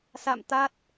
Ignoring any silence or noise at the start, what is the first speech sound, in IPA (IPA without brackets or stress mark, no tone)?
s